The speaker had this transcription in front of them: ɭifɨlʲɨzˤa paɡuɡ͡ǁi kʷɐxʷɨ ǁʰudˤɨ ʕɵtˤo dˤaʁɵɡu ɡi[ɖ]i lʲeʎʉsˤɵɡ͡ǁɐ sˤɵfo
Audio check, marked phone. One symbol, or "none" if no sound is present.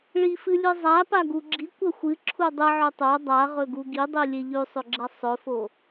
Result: dˤ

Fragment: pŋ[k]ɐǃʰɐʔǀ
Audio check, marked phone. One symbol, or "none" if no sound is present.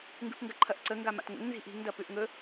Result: ɡ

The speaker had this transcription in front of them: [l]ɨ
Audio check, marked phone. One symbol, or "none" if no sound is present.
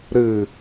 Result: ɾ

